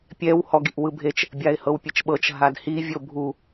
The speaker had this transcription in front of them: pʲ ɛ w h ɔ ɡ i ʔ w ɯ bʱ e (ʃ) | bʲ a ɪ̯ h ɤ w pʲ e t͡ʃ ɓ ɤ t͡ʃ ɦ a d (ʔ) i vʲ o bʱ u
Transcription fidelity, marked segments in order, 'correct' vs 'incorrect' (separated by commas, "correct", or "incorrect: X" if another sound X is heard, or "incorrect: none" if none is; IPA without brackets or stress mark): incorrect: t͡ʃ, incorrect: h